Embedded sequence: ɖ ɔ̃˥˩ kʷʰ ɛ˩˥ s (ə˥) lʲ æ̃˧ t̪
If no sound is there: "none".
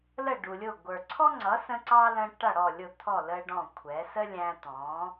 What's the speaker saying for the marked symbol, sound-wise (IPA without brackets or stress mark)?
ə˥